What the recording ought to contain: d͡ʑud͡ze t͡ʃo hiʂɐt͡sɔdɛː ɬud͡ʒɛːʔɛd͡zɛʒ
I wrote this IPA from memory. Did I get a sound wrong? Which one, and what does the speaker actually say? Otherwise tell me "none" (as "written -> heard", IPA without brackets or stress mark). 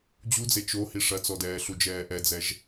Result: none